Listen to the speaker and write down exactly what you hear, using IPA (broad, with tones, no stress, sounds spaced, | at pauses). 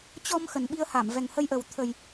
t͡ɕ ɔ˧ m x ə˨˩ n ɓ i˧ ə̯ h a˧˩ m v ɛ˨˩ ŋ h ə˧ j ʔ ə˨˩ w t̪ʰ ə˨˩ j